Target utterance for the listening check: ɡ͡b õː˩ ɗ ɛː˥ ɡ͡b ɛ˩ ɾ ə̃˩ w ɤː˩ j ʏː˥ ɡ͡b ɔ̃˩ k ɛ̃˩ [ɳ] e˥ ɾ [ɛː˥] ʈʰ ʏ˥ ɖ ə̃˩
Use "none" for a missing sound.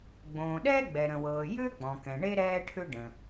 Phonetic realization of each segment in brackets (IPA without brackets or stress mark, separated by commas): ɳ, ɛː˥